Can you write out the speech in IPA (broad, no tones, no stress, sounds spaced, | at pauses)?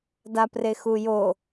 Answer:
d a p r e x u j o